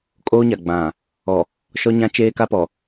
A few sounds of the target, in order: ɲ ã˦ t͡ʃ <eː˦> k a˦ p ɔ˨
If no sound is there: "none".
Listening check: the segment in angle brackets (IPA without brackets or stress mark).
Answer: eː˦